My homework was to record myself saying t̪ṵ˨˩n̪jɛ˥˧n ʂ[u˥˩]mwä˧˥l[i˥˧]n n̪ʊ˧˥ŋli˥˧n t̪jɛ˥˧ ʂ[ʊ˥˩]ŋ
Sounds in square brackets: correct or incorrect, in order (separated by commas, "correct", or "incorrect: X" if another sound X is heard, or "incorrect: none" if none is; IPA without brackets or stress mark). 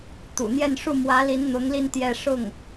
correct, incorrect: i˧˥, correct